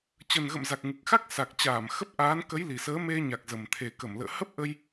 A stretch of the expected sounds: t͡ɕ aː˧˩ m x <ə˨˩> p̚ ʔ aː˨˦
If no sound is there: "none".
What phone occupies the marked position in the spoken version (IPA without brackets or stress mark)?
ə˦˥